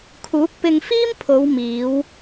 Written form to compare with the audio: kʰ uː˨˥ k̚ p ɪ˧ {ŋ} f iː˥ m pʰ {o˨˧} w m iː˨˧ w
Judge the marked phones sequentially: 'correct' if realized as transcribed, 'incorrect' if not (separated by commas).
correct, correct